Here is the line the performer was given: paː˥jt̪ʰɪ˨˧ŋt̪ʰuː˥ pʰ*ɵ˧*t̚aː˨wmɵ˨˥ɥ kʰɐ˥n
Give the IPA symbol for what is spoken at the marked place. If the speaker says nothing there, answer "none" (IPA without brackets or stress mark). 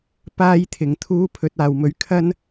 ɵ˨˥